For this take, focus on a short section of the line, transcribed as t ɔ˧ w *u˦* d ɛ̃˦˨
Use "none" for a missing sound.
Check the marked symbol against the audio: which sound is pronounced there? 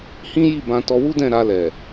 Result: u˦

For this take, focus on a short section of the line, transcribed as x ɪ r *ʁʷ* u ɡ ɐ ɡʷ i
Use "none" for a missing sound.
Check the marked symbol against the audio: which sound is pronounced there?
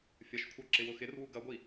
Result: w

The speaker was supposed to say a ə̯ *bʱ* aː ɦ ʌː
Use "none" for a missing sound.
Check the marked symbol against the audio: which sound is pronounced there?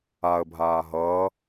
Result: bʱ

